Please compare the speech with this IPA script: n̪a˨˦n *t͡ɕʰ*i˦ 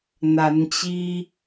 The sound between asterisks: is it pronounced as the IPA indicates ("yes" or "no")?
no